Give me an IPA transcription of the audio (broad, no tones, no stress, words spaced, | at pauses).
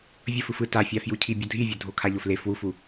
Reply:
vʲʌf ɯfɯ tafʲafju cʰibʲʌdʱivʲo dʱokʰaʎofle fwufu